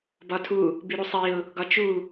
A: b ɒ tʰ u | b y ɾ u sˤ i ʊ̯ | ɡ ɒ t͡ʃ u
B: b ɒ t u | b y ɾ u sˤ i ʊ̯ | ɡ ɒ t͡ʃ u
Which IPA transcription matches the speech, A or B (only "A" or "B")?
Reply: A